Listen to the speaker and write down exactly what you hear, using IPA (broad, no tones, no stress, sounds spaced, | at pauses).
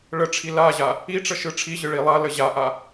ɭ ə ʈ͡ʂʰ i l a ʑ a | i ʈ͡ʂ ə ʃ ɯ ʈ͡ʂʰ i ʑ ɯ ɭ i lˠ a l ə ʑ a ʔ a